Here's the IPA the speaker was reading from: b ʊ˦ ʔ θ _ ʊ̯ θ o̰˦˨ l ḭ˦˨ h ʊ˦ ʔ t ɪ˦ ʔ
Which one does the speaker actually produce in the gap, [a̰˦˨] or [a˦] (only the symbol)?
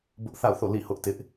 a̰˦˨